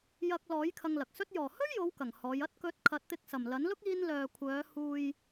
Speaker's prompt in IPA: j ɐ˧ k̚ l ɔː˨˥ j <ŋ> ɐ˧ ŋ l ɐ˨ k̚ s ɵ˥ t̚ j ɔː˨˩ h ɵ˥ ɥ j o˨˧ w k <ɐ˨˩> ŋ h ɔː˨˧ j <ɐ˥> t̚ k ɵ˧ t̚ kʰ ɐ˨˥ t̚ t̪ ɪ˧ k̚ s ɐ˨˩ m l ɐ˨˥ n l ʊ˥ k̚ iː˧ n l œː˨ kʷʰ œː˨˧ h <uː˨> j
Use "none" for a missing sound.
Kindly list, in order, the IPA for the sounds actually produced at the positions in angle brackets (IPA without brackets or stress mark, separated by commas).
kʰ, ɐ˨˩, ɐ˥, uː˨